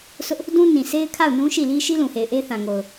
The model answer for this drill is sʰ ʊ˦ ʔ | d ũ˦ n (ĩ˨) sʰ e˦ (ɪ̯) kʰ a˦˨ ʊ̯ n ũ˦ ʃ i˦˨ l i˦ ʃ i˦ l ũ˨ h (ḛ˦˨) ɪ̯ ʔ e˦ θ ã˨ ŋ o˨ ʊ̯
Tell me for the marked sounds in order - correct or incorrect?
correct, correct, incorrect: e˨

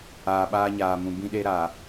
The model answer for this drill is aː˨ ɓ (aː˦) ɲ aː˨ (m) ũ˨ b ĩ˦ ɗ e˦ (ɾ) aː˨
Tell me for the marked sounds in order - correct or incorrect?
correct, correct, correct

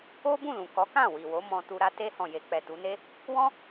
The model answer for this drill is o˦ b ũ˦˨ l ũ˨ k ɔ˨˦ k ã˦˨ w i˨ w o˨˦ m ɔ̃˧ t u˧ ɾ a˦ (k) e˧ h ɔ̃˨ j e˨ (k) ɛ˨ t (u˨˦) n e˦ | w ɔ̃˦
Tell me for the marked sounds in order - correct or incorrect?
incorrect: t, incorrect: k͡p, correct

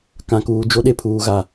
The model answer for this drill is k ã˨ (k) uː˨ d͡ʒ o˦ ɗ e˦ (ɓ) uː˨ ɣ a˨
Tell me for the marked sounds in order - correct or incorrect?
correct, incorrect: pʰ

